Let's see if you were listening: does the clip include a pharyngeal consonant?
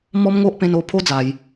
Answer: no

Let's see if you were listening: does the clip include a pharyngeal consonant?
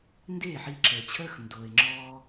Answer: yes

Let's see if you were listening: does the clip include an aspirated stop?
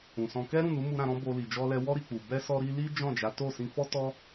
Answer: no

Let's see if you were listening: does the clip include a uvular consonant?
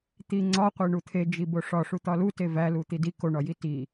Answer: yes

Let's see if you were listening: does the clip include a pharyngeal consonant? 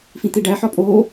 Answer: yes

